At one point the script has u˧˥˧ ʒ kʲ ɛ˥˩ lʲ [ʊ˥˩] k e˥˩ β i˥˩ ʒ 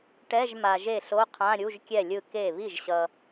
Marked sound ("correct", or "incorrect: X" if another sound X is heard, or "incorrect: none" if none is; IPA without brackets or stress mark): incorrect: ɯ˥˩